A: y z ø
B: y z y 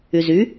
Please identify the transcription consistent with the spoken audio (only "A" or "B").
B